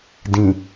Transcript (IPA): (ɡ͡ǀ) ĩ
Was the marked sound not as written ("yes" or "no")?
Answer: yes